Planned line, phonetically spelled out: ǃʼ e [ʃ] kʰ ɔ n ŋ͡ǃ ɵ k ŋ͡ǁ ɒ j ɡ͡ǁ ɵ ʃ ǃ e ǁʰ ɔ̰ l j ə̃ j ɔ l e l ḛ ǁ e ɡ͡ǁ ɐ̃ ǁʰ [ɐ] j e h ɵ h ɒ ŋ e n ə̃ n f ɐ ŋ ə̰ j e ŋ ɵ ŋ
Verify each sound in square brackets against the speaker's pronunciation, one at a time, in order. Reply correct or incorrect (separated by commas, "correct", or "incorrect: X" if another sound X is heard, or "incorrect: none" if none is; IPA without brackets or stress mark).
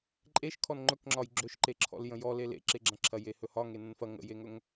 correct, correct